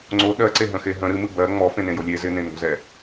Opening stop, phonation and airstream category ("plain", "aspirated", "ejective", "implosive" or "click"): click